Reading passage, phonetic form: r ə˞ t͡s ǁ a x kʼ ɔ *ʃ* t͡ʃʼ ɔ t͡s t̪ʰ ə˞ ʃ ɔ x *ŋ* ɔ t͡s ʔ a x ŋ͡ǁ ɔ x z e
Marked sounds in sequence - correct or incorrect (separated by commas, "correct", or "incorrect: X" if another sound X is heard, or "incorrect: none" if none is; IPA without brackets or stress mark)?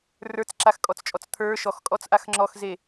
incorrect: t͡s, incorrect: kʼ